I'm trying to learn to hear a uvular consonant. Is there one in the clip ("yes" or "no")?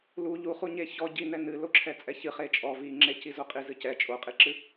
yes